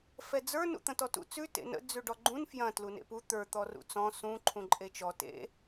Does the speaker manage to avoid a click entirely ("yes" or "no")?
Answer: no